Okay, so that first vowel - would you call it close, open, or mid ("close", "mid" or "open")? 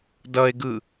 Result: mid